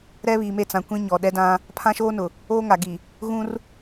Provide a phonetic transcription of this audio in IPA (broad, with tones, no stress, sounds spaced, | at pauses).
ɾ ɛ˦ β i˨ m e˦˨ t͡s ã˨ kʷ ĩ˦ ɲ ɔ˨ ɗ ɛ˦ d ã˦ | pʰ ã˦ ʃ oː˦ n ʊ˨ | oː˦ ŋ a˨ ɡ i˨ | ɣ ũ˦ r